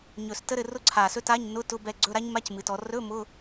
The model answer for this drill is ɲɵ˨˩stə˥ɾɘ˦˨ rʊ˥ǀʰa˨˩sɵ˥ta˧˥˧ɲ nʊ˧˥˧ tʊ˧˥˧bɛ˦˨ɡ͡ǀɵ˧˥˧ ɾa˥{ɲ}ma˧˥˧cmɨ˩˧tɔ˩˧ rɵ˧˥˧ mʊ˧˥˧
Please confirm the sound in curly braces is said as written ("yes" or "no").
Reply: yes